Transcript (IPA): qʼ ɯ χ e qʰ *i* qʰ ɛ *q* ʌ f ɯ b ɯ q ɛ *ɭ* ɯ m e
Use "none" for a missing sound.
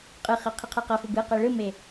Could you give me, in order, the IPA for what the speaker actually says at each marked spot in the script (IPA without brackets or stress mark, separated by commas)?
i, q, ɭ